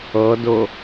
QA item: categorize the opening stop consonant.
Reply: plain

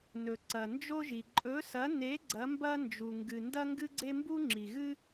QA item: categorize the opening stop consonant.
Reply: click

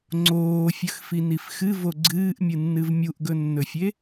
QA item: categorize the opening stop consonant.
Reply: click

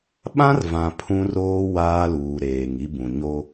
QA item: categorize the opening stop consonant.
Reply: implosive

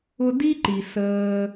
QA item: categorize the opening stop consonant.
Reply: plain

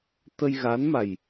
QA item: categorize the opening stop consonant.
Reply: plain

